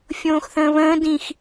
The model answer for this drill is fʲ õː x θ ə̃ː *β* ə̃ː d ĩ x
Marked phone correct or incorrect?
correct